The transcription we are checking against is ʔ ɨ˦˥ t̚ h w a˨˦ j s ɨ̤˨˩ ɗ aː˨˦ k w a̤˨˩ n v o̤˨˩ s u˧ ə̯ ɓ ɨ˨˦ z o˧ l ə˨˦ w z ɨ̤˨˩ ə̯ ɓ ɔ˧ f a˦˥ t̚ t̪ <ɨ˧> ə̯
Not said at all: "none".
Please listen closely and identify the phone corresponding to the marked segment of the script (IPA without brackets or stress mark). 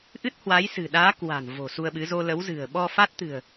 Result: ɨ̤˨˩